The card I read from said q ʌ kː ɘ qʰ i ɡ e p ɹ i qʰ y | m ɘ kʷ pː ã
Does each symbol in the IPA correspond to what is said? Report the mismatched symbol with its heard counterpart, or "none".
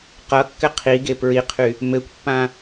none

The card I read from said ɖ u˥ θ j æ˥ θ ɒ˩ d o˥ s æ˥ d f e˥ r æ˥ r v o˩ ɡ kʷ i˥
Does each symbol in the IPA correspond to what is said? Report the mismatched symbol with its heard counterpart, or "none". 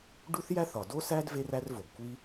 f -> v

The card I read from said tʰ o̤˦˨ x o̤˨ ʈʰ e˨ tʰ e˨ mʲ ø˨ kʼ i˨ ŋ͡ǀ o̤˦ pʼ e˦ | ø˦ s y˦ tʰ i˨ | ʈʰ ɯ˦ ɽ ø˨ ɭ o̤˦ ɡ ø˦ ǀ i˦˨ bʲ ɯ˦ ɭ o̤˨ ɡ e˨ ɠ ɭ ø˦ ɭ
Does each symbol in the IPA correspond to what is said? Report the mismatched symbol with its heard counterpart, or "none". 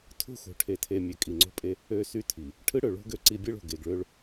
ɠ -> ɡ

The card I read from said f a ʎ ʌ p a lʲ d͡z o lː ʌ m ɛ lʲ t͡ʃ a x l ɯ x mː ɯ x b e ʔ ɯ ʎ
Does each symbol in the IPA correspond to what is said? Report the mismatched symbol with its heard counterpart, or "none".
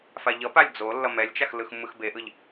none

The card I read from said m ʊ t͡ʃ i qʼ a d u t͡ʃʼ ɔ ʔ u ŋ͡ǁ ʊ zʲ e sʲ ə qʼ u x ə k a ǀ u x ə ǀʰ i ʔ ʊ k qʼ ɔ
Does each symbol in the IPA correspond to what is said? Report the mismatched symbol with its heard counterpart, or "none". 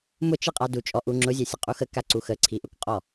none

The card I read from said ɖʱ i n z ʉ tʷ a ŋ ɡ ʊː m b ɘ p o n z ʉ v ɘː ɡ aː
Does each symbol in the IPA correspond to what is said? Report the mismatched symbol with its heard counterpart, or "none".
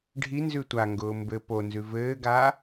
none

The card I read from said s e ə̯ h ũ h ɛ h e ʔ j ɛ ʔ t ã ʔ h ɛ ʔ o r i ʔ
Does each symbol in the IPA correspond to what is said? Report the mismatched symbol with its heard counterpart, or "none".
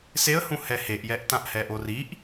none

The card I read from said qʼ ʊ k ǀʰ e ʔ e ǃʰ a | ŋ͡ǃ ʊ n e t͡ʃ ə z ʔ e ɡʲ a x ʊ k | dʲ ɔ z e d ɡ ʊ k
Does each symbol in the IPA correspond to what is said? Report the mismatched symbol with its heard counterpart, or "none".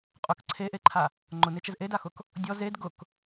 ɡʲ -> d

